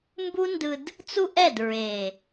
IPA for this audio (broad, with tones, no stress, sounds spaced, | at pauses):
m b u˦ n d ɯ˧ d | t͡s u˦ ʔ ɛ˦˨ d ɹ e˨